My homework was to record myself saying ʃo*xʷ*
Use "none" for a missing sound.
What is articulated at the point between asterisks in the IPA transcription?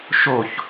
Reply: ç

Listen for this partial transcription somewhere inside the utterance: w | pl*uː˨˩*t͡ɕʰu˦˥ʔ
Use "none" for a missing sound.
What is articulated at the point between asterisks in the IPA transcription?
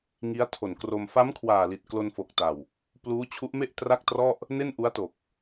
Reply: uː˦˥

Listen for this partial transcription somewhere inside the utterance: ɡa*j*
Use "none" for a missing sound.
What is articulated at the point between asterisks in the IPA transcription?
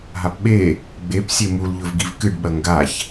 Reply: ç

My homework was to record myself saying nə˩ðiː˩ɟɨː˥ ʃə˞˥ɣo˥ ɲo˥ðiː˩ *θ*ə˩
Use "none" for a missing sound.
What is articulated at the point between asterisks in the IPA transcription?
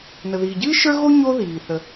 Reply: θ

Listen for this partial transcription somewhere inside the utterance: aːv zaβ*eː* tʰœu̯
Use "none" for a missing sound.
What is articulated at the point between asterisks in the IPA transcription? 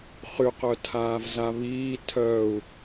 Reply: iː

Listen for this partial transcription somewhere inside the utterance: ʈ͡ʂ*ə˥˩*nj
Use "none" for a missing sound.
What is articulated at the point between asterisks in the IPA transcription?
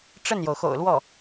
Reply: ə˥˩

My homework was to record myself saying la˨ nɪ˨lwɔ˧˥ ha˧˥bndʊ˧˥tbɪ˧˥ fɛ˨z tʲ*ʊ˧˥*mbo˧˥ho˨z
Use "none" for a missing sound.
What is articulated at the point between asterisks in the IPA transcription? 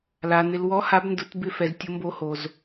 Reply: ʊ˧˥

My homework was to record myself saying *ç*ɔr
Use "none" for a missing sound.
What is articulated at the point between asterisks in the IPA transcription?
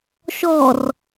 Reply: ʃ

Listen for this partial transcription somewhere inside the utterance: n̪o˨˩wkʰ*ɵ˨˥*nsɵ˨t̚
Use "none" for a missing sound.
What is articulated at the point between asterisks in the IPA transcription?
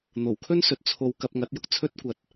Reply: ɵ˥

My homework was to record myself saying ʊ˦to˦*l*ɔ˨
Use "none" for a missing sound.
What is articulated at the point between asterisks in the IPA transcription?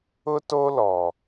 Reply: l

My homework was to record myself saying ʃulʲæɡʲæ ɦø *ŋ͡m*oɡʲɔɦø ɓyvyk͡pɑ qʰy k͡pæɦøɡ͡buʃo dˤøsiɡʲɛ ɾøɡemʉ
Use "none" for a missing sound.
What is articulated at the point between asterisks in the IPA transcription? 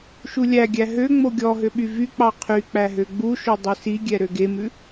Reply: ŋ͡m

